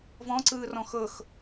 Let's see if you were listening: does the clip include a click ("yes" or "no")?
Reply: yes